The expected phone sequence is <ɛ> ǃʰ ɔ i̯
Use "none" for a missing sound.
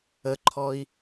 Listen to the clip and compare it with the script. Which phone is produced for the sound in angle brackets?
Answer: ə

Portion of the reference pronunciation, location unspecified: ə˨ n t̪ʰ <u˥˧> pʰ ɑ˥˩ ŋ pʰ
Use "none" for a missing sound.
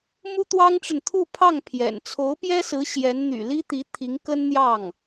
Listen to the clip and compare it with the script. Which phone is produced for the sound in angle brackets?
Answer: u˥˧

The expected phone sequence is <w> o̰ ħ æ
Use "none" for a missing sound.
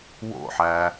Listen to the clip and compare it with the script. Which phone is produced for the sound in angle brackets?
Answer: w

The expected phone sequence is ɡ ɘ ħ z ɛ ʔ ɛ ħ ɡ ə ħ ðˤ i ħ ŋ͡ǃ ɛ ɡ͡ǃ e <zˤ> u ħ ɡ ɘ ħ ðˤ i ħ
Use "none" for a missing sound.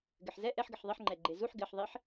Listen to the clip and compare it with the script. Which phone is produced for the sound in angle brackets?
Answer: z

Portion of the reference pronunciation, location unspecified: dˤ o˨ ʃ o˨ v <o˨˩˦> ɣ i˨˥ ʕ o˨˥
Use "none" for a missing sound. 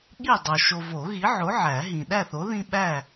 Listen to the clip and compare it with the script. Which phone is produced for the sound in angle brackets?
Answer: o˨˩˦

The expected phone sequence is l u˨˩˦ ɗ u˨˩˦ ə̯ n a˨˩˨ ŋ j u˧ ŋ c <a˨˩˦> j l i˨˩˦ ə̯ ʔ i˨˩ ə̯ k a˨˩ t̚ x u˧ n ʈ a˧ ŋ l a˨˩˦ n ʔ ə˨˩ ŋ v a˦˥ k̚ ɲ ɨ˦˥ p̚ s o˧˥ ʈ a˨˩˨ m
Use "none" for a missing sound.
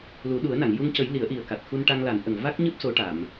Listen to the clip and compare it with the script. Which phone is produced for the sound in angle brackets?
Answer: ə˨˩˦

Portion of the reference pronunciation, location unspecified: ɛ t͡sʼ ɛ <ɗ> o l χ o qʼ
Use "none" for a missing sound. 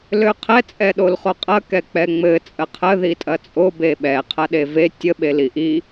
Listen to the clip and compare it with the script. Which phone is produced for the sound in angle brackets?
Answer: ɗ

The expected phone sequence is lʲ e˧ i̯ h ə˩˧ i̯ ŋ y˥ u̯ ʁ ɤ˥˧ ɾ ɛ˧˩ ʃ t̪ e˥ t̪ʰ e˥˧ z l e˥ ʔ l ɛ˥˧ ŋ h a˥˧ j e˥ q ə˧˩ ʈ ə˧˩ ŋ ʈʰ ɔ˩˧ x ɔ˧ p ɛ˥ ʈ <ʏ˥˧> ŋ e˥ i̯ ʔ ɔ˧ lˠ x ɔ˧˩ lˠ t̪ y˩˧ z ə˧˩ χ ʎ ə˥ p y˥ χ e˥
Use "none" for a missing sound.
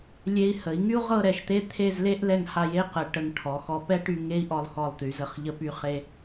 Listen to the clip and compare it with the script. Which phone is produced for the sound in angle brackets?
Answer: y˥˧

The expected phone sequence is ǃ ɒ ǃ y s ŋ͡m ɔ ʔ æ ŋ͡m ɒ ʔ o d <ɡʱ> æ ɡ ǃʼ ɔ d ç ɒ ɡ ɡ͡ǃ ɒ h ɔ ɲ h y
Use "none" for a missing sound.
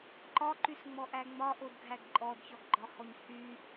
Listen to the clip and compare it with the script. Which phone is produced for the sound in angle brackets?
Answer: ɡʱ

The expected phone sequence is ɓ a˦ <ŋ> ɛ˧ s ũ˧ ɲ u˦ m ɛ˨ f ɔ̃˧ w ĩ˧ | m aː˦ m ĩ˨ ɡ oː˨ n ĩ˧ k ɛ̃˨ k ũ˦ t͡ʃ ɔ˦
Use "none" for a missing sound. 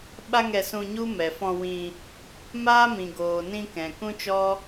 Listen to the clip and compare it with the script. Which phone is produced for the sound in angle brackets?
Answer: ŋ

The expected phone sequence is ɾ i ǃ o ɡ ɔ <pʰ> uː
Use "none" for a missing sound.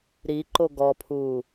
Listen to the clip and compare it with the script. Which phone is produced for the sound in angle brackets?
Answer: pʰ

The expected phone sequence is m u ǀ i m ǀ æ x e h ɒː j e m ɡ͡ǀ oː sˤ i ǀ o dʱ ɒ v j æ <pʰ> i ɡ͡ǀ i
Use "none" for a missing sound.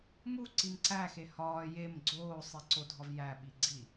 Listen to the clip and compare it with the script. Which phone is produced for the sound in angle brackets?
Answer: ɓ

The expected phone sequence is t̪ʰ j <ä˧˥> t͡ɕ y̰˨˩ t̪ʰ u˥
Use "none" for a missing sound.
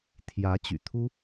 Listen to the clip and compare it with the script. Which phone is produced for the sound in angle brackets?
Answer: ä˧˥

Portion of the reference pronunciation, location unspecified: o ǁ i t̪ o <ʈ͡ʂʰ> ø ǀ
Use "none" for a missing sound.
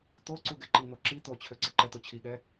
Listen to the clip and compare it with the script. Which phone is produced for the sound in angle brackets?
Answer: t͡ɕʰ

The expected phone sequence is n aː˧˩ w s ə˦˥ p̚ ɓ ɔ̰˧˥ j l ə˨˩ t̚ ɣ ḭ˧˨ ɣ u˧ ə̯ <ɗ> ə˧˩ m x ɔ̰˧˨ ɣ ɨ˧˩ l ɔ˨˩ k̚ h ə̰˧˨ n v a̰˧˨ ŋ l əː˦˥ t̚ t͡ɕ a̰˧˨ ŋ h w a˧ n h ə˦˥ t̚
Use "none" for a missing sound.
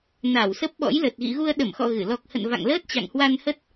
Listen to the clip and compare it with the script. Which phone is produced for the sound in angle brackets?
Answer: ɗ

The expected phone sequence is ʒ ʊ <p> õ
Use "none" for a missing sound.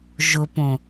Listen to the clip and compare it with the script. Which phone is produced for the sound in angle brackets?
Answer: p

